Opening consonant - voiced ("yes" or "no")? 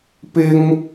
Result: no